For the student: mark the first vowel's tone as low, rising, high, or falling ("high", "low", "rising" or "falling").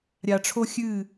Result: low